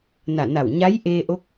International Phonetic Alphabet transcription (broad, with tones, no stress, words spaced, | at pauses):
na˧˩na˧˩w ɲa˧˥jʔeː˧ʔo˧˥k̚